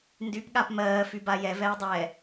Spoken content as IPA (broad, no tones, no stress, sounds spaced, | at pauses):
n d y p ɠ a p m ɜː f y b a j ɛ v ɛː dˤ ɛː